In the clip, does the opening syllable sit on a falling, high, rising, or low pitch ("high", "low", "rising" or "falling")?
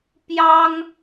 high